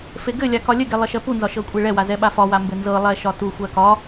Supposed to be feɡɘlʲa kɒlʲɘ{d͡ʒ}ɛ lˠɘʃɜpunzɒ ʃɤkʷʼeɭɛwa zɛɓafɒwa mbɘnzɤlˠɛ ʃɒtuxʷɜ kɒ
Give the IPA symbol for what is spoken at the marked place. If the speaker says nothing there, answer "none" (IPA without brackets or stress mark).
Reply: ɡ